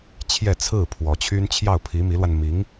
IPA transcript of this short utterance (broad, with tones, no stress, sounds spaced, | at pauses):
t͡ɕʰ j ɛ˥˧ t͡sʰ ɹ̩˥˩ pʰ w ɔ˧˥ t͡ɕʰ y˥ n t͡ɕʰ j ɑ˥˩ ʊ̯ pʰ i˧˥ m i˧˥ l w a˧ n m i˧˥ ŋ